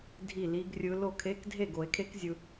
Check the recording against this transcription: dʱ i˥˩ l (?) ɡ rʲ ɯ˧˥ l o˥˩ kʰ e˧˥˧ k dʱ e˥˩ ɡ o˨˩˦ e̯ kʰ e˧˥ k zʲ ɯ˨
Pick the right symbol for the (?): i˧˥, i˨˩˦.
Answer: i˧˥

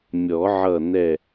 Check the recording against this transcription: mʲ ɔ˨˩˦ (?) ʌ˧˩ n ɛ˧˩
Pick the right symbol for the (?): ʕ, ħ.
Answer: ʕ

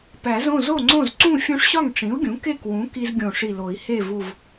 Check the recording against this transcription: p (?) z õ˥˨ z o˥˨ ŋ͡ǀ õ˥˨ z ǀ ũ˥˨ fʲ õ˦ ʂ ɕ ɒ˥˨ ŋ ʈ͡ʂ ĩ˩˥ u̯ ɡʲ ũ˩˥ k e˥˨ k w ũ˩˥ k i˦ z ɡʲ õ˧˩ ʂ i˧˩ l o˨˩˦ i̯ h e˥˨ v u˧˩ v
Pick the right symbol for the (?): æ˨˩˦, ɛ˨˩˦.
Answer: æ˨˩˦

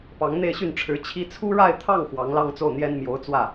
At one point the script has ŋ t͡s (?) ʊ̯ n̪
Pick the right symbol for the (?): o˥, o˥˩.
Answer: o˥˩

